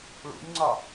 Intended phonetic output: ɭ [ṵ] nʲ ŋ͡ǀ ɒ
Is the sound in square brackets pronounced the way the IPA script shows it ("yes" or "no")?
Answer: yes